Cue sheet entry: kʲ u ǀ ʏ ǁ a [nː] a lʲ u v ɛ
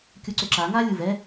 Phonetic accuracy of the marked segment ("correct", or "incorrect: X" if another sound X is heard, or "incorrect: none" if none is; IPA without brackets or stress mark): incorrect: ŋ